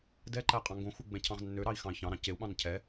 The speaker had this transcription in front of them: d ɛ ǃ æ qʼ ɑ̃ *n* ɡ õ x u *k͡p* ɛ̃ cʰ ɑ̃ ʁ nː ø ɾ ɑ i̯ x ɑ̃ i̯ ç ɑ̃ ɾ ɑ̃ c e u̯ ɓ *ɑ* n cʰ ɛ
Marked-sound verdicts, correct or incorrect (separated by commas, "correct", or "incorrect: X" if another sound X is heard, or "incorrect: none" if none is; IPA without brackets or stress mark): incorrect: ŋ, incorrect: ɡ͡b, incorrect: ɑ̃